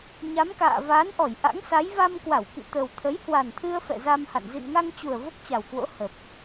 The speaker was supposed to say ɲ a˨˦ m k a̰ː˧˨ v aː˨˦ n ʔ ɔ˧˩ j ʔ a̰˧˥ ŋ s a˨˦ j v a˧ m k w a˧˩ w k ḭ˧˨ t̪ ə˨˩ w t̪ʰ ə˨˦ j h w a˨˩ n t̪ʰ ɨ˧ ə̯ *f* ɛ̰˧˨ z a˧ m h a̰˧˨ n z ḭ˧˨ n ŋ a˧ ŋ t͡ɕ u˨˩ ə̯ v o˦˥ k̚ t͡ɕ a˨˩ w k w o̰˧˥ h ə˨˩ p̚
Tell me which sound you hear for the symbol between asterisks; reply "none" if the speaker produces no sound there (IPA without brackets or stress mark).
f